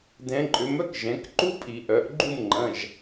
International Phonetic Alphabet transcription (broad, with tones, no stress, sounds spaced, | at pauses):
d ɛ̃˨˥ ǃʼ ʏ˨˥ m œ˥ k ʒ ɛ̃˩˧ k ǃ u˥ pʼ i˧˩˧ ʔ œ˩˧ ʔ ɡ͡ǃ u˥˨ m ŋ͡ǃ ɐ̃˩˧˩ ʒ